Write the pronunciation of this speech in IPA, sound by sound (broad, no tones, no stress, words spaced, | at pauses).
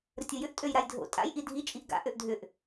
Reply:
ɾətʲojʏʔ tʼøjɾajdʱo̰ tʼa̰j ʔidʱi t͡ʃʼiʔɡa̰ ʔøʔdʱʏʔ